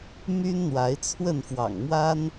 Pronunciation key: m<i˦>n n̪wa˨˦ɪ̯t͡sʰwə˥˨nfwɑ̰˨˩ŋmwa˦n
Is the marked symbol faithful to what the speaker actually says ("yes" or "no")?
no